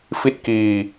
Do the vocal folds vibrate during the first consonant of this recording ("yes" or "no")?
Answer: no